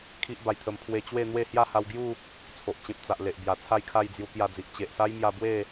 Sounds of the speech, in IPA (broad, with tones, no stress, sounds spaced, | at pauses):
kʰ i˦ ʔ b a˧ j t̪ʰ ə˧ m pʰ w e˧ t͡ɕ w e˥˧ n̪ w e˥˧ h j a˥˧ h a˧ w ɡ j u˥˧ | t͡sʰ o˨ ʔ t͡ɕ ẽ˨ p̚ t͡s a˨ ʔ l e˨ ʔ b j a˨˩ t͡sʰ a˥˧ j kʰ a˥˧ j d͡z j u˧ k j a˧ d͡z i˨ ʔ t͡ɕ e˨ ʔ s a˦ j m j a˧ b w e˥˧